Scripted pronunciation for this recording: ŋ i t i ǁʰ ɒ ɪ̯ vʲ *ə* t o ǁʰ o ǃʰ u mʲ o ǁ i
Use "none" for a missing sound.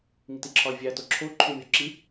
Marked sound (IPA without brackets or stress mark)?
æ